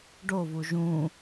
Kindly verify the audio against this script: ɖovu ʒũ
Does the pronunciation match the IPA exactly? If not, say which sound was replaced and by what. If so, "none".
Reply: none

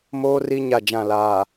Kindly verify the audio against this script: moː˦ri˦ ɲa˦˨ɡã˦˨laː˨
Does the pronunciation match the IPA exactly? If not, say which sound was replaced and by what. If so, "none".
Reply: ɡ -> d͡ʒ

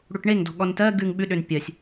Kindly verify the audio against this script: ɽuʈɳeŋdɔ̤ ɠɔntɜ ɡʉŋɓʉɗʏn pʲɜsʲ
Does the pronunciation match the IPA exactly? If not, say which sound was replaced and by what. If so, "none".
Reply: none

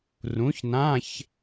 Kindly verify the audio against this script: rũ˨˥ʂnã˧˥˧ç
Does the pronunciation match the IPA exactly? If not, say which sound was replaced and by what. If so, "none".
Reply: ʂ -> ç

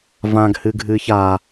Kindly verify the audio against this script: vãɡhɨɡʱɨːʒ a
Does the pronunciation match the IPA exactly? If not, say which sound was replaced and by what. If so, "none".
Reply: ʒ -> ç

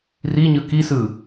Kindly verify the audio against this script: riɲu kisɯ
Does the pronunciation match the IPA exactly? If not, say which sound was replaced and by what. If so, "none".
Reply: u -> ɯ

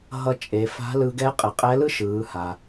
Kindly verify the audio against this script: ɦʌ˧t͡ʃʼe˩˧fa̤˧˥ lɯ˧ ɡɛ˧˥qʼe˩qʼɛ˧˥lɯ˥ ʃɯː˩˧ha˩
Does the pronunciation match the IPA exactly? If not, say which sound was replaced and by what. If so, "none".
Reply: none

